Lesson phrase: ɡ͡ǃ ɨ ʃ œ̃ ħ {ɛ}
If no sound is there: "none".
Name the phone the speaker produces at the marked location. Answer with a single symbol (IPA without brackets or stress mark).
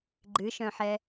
ɛ